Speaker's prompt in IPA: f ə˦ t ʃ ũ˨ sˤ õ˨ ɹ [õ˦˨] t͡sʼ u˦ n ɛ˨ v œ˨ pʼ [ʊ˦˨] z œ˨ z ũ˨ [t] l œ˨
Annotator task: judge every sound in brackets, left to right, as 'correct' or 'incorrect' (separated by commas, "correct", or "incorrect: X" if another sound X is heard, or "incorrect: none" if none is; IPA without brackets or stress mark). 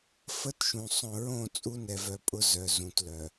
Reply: correct, incorrect: ʊ˦, correct